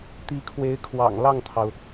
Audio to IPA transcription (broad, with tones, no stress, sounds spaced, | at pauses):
t̪ i˧˥ kʰ w e˧˥ ɪ̯ kʰ w ɑ̰˨˩ ŋ l ɑ˥˩ ŋ t̪ʰ ɑ˩ ʊ̯